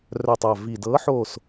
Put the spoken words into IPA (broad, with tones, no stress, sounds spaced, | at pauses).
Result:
r œ˨˩ tˤ a˨˩ v i˨˩ d ɤː˨˥ ħ oː˦˨ s